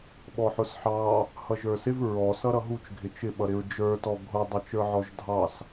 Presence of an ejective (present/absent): absent